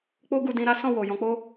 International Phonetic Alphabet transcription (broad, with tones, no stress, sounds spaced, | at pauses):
k͡p o˦ ɡ u˧ d ĩ˧ ɾ a˦ s ɔ̃˦˨ w o˨ j ɔ̃˧ k͡p o˦